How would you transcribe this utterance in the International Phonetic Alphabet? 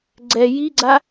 ɡ͡ǀɛ jiɡ͡ǀa

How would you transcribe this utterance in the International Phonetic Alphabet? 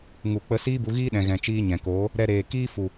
ŋu˨k͡pə˧ siː˦bu˧ɣiː˦ ɗɛ̃˨ɣɛ̃˨t͡ʃiː˧ ɲɛ̃˨koː˨˦ | ɾɛ˧ɾeː˨ kiː˦fu˨

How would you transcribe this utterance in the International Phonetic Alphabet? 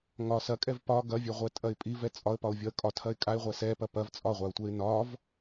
ŋɒ sɐkʼɛv pɒ ɡɐvʲɛʁʷɛtʼɐɪ̯ pʼivɛ t͡sʼɒə̯pɒʊ̯vʲɒə̯ kʼɒtʰɐɪ̯ kʼaɪ̯ʁʷɛ sɛpɐ pɐv t͡sʼɒʁʷaʊ̯tʷɛɪ̯ nɒv

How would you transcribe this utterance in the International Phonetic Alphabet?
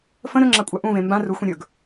fə̃ ɾɵŋ͡ǁakʷʼa ʔũvẽ mbã ruxʷẽ ɾʲɵɡ

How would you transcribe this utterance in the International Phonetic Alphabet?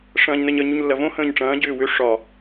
ʂɐ̃ːɲnəɲə ɲuɲlːɐvõ hə̃ːɲʈ͡ʂɐ̃ː ɟʏːwʏ ʂɒ

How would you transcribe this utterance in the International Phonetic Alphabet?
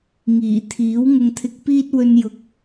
ŋiː˨˩t̪ʰiː˨˥w ŋʊ˧ŋt̪ʰɪ˧k̚piː˥t̚ wɵ˥n jʊ˨k̚

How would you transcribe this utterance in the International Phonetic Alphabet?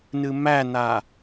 nɨmæna

